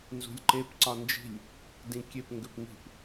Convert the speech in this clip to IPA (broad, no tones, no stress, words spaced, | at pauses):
nzṳlʲǃep ǀɒnd͡ʒi̤lʲ | dĩkʲep ŋɡʏpŋi̤p